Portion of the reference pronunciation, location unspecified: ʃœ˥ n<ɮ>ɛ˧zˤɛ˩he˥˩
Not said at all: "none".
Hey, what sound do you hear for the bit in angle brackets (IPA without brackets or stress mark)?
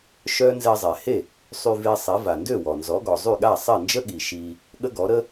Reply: z